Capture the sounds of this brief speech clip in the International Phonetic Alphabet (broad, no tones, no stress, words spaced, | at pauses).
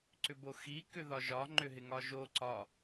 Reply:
ǀʏboxi kʏðɒʒɒ ŋ͡ǃʏɦɪŋɒʒo ǀɒ